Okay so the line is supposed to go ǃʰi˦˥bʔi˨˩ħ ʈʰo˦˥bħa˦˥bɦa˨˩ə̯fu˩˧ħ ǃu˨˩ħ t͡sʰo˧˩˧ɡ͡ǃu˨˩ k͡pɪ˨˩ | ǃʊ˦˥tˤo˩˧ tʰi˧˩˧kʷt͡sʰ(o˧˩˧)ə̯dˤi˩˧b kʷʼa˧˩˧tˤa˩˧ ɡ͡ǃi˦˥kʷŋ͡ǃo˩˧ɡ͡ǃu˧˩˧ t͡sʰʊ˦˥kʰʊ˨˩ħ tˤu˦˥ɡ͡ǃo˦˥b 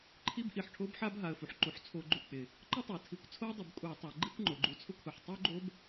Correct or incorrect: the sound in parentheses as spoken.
incorrect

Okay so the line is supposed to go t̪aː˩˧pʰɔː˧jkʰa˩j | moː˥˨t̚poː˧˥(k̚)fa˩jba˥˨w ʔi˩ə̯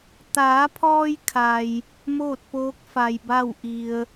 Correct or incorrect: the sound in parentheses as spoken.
correct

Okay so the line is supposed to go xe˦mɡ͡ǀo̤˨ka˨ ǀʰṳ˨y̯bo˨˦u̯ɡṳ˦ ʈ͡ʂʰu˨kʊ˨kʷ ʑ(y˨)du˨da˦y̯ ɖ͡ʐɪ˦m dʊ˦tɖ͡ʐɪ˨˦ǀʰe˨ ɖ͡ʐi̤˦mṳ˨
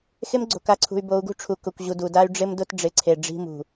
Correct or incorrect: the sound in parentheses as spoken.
incorrect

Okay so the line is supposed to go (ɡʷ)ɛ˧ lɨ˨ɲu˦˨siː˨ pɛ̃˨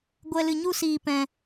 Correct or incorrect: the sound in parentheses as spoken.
correct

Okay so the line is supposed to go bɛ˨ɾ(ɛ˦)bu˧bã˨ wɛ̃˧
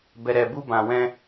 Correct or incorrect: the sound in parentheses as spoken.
incorrect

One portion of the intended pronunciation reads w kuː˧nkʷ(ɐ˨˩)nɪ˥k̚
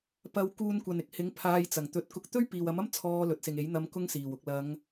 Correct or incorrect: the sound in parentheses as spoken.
incorrect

